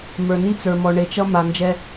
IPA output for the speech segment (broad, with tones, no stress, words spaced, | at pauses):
mə˞˨ni˦t͡sə˞˨mɔ˨ ɳe˨t͡ʃʌ˦ ma˨ nd͡ʒɛ˦